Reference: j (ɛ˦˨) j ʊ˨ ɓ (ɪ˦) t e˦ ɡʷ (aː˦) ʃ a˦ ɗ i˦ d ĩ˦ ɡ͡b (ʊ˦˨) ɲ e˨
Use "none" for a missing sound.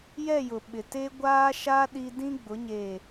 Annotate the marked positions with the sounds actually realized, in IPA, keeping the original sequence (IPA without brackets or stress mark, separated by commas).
ɛ˦˨, ɪ˨, aː˦, ʊ˨˦